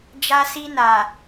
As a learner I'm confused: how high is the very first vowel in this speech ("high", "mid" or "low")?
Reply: low